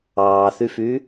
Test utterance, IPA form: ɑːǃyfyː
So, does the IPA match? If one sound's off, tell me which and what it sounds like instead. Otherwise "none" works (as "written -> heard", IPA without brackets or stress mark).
ǃ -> θ